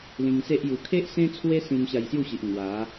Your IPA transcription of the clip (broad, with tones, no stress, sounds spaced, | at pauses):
l ĩ˧ ŋ s e˦ ʔ j u˨˩ kʰ e˦ ʔ s ẽ˦ t͡sʰ w e˦ s ĩ˧ m ɕ a˧ j s j u˥˧ ɕ i˨ ʔ ŋ w a˨˦